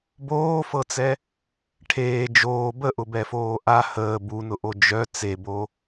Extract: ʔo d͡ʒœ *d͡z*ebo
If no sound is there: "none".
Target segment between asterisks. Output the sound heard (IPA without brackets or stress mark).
t͡s